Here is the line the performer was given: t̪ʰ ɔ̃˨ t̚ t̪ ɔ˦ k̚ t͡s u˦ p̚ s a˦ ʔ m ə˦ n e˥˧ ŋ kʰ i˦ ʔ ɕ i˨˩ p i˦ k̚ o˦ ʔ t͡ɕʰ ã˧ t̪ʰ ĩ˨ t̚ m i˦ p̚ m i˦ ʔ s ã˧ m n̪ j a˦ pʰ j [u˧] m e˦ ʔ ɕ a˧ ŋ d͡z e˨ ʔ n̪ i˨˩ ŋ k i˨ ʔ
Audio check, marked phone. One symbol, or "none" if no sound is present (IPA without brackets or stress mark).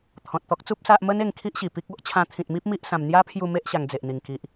u˧